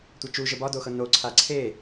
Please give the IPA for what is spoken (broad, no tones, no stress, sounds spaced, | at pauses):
tʷ ɤ t͡ʃ u ʒ ə b ɒ d o x ɤ n o ǀʰ a ǀʰ e